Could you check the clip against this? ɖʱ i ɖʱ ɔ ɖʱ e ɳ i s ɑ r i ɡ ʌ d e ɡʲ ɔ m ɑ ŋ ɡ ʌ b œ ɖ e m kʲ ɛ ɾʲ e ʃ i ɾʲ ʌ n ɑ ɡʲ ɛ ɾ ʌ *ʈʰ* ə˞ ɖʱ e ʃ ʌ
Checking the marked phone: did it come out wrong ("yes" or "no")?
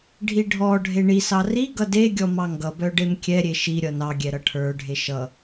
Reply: no